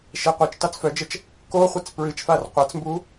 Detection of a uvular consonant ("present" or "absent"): present